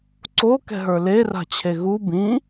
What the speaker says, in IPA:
ǀ o k ɛ̤ ɦ ə˞ l e r a̤ t͡ɕʰ e ɣ u b ĩ

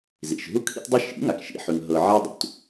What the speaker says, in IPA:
z ḭ˩ ʃ ɦ u˥ kʰ ḭ˥ t dˤ ɨ˥ ʃ ḭ˩˥ ŋ a˩ k ʃ ḭ˥ ħ ʉ˧ ŋ ɦ ɤ˧ ʕ a˥ dˤ ṵ˩ t

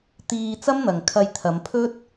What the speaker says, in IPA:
t̪ iː˧ t͡s ɐ˥ m n̪ ɐ˨ ŋ kʰ ɐ˧ j t̪ʰ ɐ˨˧ m pʰ ɵ˥ t̚

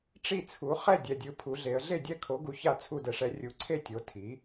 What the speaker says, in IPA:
ʈ͡ʂ i˥˩ t͡sʰ u˩˥ χ ɛ˥˩ dʲ ɛ˨ dʲ ɯ˩˥ pʰ u˩˥ ɮ e˩˥ ə̯ ɮ e˥˩ dʲ ɛ˥˩ kʰ o˩˥ ɡ u˩˥ ç a˥˩ t͡sʰ u˥˩ d ɛ˨ ʂ ɛ˩˥ rʲ u˩˥ ǀʰ e˥˩ tʲ o˩˥ tʰ i˩˥

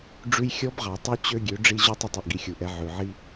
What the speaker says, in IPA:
ɖ͡ʐ ʉ˧ j xʲ ɔ˧˥ b ʁ ɑ˩ tˤ ʉ˧˥ t͡ɕ ø˧ ɡʲ ø˩˧ ɖ͡ʐ i˧ ʑ u˧ tˤ ɛ˧ tˤ i˩ ʔ ɡ i˩˧ xʲ u˩ ʔ ɛ˩˧ ʕ ʉ˩ ʕ i˧

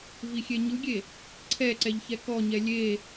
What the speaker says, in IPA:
v i xʲ e ɲ ɯ ɡʲ e | ǀʰ ɛ ǀ ɛ ʎ ç ɛ k ɔ ɲ ɛ lʲ e

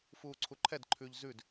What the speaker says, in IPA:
f uː ǀʰ u ǃʰ ɛ d ǃʰ ʉ ʎ z ʉ d

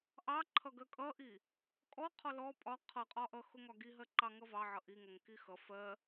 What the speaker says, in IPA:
ʔ ɑ ǃʰ ʌ ɡ ɜ kʼ ʌ ʔ i | kʼ ɔ qʰ ɔ l ɔ pʼ ɒ qʰ ʌ qʼ ɒ ʔ ʌ x ʊ ŋ ɒ ɡ i ɦ ɜ ǃ ɑ ŋ ʌ v ɑ ʕ ʌ ʔ i ŋ ʌ ŋ k i x ʌ f ɜ

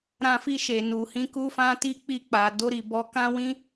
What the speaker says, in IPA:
ɾ ã˧ f i˧ ʃ e˨ n u˨ h ĩ˧ k u˧ f ã˧ t i˦ k͡p i˧ k͡p a˨ d o˧ ɾ i˨ b ɔ˨˦ k ã˦ w ĩ˦

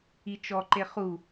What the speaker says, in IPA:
i t͡ʃ ɔ ǃ e χ u

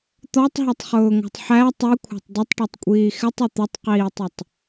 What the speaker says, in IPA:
t̪ ɔ tˤ ɦ ɔ tˤ χ ʊː ŋ ɑ̤ tˤ ħ æ tˤ i kʷʰ ɑ̤ tˤ d ə tˤ ʈ ɔ tˤ kʷʼ iː x ɪ tˤ ʊ t̪ ɪ tˤ q iː tˤ ʌ tˤ

